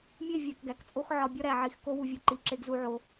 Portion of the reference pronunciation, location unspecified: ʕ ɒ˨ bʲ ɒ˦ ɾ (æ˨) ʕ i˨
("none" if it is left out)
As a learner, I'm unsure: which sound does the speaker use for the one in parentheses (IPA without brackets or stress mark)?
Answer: æ˨